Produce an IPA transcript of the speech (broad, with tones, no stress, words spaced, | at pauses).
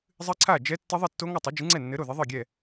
zˤɨ˦˥ǀʰa˥˩d͡ʒɛ˦˥ tːɘ˦˥ðˤɘ˥˩tːo˦˥ ŋo˥˩tˤo˨˥d͡ʒɨ˨˥ŋ͡ǀɛ˥˩ nːɘ˨˥ɾo˥˩ðɘ˨˥ ðˤɨ˥˩ɡʲɛ˥˩